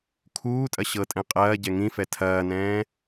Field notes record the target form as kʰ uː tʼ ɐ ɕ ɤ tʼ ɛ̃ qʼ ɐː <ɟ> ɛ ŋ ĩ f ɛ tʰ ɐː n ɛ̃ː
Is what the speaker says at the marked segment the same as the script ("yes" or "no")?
yes